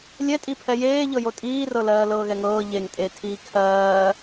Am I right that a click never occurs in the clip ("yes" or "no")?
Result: yes